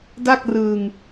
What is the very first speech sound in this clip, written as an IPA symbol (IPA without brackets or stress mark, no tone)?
d